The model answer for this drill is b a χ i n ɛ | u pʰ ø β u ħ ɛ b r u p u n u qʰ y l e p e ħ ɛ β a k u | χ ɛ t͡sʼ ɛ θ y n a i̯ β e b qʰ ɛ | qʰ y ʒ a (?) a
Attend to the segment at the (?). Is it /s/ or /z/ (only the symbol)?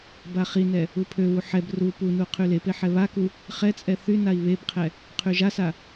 s